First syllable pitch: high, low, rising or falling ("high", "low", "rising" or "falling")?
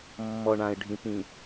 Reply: low